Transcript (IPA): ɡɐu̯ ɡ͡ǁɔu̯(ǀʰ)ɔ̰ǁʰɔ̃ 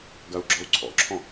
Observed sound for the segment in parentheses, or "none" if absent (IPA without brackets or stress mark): ǀʰ